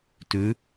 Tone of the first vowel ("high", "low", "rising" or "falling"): rising